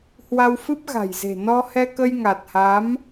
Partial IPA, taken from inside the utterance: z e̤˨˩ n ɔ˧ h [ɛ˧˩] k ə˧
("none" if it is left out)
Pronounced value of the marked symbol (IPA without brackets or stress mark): ɛ˧